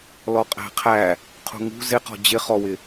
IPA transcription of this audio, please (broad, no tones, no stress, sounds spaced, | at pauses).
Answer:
l ɔ qʼ æ̤ qʰ æ | qʰ ṳ ŋ ṳ z ɪ q ɔ̤ d͡ʑ ɪ χ ɔ w ɪ